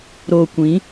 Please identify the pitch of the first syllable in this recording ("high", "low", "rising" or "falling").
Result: low